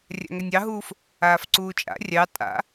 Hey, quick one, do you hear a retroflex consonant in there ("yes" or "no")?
no